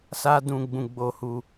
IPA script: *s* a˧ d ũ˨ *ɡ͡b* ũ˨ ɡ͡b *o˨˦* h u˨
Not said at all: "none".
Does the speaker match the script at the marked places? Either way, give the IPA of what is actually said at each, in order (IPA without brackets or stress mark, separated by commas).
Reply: s, ɡ͡b, o˨